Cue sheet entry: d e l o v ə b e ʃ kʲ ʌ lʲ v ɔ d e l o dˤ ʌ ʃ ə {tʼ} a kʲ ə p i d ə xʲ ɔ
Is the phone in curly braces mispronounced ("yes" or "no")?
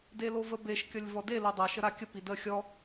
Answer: yes